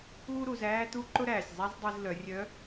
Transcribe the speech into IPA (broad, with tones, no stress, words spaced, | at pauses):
uː˥ɾu˩˧z æː˥t̪u˥ ǃʊ˥ɾæː˩sʲzˤæ˥z dˤi˧zlœ˩˧rʲœ˧˥